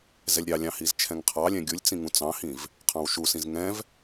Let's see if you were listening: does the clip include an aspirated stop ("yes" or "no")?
yes